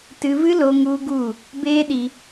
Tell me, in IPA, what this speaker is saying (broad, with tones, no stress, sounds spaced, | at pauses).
t ɨ˧ v ɨ˦ l o˧ ŋ u˦ ɡ u˦˨ | b eː˦ ɗ i˧